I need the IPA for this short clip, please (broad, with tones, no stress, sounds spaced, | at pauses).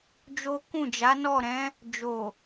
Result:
d͡ʒ o˦ k ũ˦˨ d͡ʒ a˨˦ n ɔ˦˨ ɾ ɛ̃˨˦ | d͡ʒ o˨